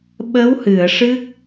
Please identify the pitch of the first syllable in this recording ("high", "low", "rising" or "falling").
rising